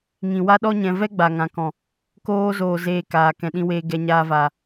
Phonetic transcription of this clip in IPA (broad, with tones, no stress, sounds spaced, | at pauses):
ŋ ĩ˨ w a˦ ɗ ɔ˦ ɲ ɛ̃˨ v ɛ˦ ɡ͡b a˨ ŋ ã˨ k ɔ̃˨ | k oː˧ z oː˨ z eː˧ k aː˨ k ɛ̃˨ ɗ ĩ˧ w eː˧ ɡ ɛ˧ ɲ aː˧ v aː˨